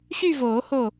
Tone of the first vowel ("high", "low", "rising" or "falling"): falling